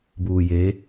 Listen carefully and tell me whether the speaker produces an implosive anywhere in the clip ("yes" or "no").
no